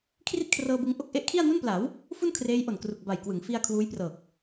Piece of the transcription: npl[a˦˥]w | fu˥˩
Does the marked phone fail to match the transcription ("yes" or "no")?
yes